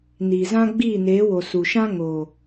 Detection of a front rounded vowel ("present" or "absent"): absent